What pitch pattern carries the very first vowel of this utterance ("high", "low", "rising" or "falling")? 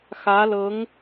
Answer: rising